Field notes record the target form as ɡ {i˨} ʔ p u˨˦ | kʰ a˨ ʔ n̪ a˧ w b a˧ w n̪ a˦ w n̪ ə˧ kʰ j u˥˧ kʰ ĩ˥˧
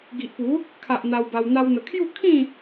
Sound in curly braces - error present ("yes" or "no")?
no